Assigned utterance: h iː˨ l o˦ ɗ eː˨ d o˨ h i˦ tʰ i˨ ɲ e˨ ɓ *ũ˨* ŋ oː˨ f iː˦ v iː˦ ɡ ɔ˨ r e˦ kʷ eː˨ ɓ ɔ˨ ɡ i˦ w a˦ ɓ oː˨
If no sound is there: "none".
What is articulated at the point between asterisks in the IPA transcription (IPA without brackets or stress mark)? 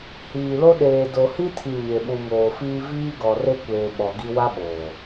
ũ˨